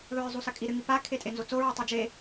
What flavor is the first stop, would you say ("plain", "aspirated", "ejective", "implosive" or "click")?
ejective